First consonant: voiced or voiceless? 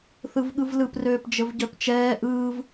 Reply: voiceless